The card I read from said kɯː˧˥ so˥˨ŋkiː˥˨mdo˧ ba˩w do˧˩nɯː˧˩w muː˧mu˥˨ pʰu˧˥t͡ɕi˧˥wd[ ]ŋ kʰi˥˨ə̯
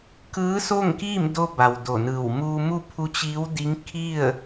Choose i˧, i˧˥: i˧˥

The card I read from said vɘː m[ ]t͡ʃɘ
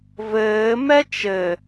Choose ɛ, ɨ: ɛ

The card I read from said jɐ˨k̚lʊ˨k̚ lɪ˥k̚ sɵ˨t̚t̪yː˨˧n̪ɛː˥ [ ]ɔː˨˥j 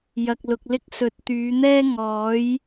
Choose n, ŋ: ŋ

